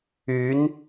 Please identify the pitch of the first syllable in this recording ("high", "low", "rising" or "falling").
rising